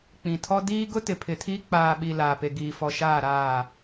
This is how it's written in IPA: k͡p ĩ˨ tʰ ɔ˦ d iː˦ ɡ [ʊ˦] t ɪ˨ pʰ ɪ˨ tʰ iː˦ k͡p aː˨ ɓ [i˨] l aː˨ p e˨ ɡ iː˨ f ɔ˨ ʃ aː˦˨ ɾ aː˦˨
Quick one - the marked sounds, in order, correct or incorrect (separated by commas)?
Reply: correct, correct